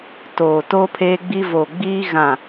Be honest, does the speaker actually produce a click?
no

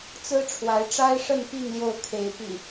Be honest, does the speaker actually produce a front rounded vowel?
no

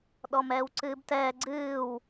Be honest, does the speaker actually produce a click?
yes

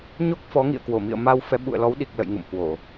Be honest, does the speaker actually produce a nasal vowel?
no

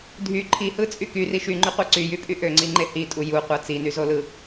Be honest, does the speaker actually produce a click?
yes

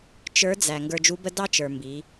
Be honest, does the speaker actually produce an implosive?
no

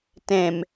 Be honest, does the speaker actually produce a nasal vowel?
yes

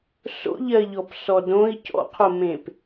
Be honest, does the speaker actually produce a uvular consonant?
yes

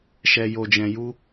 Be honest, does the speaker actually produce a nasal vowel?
yes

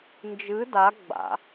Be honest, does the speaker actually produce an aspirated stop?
no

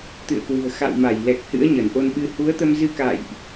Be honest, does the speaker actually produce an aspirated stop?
no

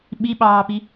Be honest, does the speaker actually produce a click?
no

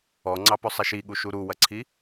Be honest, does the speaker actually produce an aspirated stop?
yes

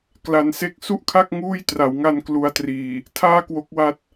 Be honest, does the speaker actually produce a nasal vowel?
no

